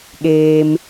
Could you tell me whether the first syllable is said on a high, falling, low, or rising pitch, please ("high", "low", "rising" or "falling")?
low